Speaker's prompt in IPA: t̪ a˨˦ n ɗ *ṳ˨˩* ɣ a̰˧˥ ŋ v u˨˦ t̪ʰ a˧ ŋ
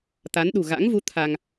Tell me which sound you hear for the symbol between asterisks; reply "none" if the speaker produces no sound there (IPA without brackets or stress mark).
ṳ˨˩